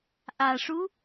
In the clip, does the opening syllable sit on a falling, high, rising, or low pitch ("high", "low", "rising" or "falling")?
low